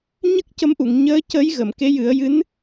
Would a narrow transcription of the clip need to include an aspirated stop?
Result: no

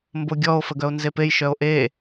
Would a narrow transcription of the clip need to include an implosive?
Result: no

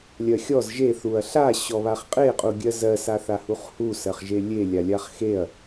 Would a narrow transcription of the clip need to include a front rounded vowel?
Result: no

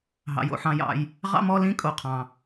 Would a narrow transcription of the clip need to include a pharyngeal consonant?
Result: yes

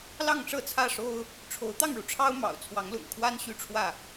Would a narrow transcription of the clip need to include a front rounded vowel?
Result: yes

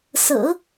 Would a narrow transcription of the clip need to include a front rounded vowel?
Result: no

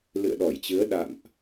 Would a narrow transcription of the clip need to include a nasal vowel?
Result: no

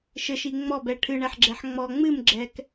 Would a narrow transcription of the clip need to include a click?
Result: yes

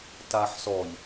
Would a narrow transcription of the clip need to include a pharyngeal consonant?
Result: yes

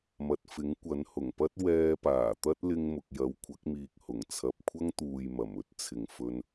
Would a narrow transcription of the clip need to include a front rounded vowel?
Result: no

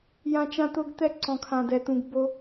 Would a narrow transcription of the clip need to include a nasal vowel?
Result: yes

